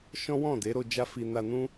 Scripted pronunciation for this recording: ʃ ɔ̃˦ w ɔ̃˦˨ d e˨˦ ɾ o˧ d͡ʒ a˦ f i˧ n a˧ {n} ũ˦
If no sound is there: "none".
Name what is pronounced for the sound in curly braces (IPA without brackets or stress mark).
n